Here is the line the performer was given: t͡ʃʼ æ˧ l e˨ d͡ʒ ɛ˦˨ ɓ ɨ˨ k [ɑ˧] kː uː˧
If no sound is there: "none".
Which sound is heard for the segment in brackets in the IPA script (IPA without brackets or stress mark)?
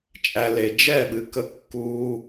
ə˧